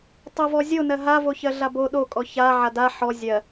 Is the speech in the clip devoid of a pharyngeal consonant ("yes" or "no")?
no